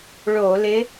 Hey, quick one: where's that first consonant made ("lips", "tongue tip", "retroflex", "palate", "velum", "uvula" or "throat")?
retroflex